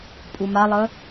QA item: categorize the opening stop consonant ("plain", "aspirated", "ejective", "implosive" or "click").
ejective